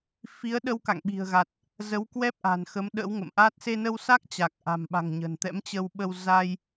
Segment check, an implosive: present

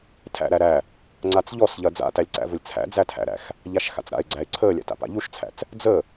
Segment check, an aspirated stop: present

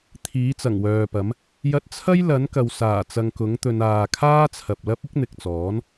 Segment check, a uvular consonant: absent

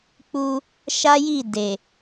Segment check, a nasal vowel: absent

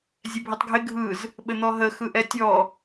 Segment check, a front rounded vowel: absent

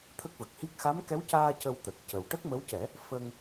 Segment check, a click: absent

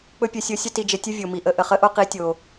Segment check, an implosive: absent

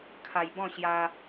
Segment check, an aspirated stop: present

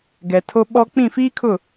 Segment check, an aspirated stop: present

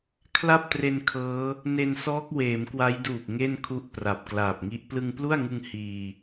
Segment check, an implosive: absent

